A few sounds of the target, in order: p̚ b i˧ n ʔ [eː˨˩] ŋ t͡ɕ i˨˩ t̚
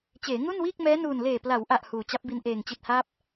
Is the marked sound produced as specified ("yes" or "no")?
yes